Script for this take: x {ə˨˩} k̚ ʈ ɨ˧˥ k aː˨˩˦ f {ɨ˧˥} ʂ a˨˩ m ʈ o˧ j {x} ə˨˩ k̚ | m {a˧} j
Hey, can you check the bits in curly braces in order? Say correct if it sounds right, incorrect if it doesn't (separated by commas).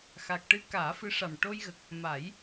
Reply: incorrect, correct, incorrect, incorrect